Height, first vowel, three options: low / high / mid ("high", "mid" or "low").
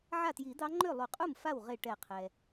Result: low